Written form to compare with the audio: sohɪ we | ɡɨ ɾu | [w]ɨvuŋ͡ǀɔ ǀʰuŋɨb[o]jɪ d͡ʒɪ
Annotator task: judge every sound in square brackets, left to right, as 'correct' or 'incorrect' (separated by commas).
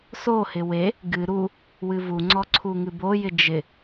correct, correct